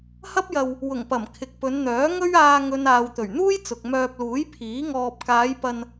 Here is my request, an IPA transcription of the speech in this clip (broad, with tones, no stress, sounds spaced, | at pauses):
h ɐ˥ p̚ j ɐ˧ w | w ʊ˨˩ ŋ p ɐ˨˩ m kʰ ɪ˨ k̚ p ɵ˨˧ n n̪ œː˨˥ ŋ ɵ˥ ɥ aː˧ ŋ ɵ˨ n aː˨ w t̪ ɵ˨˩ ɥ n̪ uː˥ j t͡s ʊ˨ k̚ m œː˧ p̚ l uː˨˥ j pʰ iː˨˥ ŋ ɔː˧ p̚ k aː˨˧ j p ɐ˧ n